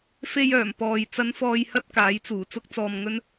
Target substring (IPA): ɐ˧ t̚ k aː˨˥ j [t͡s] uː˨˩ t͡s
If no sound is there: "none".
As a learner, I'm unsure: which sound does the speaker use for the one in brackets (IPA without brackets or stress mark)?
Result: t͡s